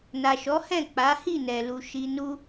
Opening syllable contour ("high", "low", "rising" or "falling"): low